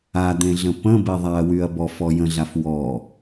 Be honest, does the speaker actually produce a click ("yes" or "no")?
no